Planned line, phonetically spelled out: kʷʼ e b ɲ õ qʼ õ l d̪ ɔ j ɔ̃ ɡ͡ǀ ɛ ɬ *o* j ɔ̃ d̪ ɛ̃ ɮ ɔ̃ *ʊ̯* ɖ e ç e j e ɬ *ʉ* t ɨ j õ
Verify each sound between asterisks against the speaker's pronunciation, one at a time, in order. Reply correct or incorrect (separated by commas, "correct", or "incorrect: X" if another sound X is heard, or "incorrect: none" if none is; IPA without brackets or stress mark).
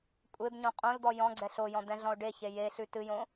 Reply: correct, correct, correct